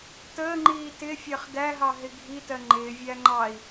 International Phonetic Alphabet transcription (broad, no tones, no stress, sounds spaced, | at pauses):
t əː ŋ͡ǃ iː t ɪ fʲ ɜ χ d æ ɦ ɑ ɦ ɪ ɡʱ i t ɜ ŋ͡ǃ ɪː vʲ æ ŋ͡ǃ ɑ i̯